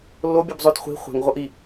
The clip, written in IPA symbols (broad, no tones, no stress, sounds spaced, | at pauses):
lː o bʲ ɯ b zˤ o t χʷ i̤ χʷ ɛ̤ ŋ ʁʷ ɤ ʔ i